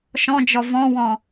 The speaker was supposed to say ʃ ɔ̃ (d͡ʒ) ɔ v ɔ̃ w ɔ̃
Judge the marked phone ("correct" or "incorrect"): correct